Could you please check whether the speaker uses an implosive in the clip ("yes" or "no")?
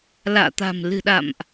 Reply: yes